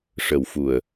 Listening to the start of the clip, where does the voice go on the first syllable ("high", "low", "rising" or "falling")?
low